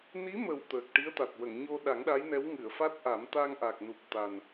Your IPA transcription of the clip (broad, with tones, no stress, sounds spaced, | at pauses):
n i˧˥ m ə˨˩ w t̪ əː˨˩ k̚ ʈ i˧˥ ə̯ t̪ a˨˩ t̚ w ə˨˩˨ ŋ ɲ o˧ ɗ a˨˩˦ ŋ ɗ a˧˥ j n ɛ˧˥ w ŋ ɨ˨˩˨ ə̯ f a˦˥ t̚ ʔ a˨˩˦ m t̪ a˧ ŋ ʔ a˨˩ k̚ n u˨˩ p̚ t̪ a˨˩ n